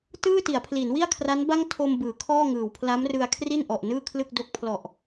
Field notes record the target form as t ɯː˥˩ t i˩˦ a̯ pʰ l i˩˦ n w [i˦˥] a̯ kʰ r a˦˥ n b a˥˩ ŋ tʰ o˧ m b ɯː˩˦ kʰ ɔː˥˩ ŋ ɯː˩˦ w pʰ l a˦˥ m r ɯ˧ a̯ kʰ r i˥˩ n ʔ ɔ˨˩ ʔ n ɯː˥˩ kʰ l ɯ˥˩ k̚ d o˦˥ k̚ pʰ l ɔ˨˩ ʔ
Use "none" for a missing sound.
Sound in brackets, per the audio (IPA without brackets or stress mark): i˥˩